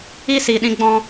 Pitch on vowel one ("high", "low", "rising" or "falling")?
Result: high